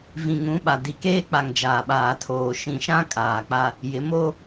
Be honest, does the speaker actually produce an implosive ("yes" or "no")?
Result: yes